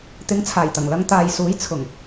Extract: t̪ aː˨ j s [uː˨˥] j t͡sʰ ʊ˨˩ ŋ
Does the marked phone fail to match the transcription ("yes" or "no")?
no